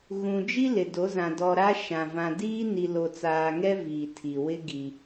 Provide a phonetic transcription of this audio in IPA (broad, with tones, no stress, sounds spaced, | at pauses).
ɣ ũ˨ d͡ʒ i˦ l ɪ˨ d o˨˦ z ã˨ d ɔ˨ ɾ a˦ ʃ ã˨ v ã˨ d iː˦ n i˨ l o˨ t͡s aː˨ ŋ ɛ˦ v iː˨ tʰ i˨ w ɪ˦ ɡ i˦